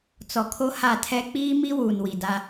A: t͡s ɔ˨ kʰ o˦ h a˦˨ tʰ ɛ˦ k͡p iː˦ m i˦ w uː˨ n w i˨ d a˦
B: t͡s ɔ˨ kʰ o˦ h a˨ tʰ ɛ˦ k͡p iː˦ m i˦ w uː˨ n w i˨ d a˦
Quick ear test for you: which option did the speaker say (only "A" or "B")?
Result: A